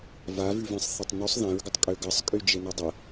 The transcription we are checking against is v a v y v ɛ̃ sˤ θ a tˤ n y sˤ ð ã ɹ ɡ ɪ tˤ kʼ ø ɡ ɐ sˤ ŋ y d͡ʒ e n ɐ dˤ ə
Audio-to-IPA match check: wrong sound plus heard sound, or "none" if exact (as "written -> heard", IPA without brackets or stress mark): ŋ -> kʼ